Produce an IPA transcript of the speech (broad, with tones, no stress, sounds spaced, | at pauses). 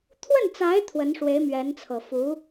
t̪ʰ w ə˥˩ n t͡s a˧˥ ɪ̯ t̪ʰ w ə˧˥ n ʂ w e˧˥ ɪ̯ m ɥ ɛ˧˥ n t͡sʰ ɤ˨˩ f u˧˥